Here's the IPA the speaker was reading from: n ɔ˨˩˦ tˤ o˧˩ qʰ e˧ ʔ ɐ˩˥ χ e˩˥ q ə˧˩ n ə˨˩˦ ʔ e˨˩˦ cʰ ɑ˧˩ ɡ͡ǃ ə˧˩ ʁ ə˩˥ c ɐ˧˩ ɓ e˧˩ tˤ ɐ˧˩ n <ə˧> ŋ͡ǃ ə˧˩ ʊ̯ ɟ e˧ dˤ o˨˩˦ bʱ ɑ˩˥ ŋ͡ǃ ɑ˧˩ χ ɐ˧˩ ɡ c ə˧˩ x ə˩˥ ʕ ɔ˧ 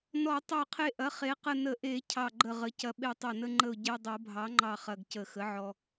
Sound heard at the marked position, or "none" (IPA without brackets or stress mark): ə˧